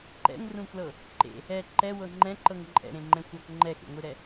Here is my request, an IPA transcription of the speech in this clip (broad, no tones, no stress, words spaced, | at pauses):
ǃɛ̰ŋrũklɤ | ǃḛ | ɛ ǃɛwɤ ŋ͡ǃɛ̃ǃɤŋ ǃʼɛ̰ɾẽŋ͡ǃɛ̃xʷak ŋ͡ǃɛxḛŋʷiɾɛ